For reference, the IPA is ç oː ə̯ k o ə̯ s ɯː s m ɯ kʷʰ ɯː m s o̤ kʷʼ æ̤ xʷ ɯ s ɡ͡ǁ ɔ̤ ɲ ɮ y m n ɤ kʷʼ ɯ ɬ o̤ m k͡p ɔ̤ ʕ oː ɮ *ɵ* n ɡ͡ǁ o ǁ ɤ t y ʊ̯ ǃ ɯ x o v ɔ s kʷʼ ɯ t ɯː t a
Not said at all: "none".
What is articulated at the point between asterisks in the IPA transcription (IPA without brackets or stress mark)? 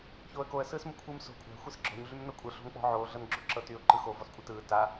ɤ